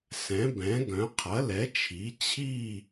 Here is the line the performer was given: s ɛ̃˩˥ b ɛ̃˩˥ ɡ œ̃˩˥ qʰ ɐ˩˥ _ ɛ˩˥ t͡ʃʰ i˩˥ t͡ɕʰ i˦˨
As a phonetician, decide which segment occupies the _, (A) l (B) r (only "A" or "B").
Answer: A